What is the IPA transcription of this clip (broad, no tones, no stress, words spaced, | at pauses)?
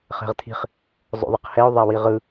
χɛ̤ʁt̪ʰi̤χ | zˤo̰ðˤiqhɛo̯ ðˤawiʁɯ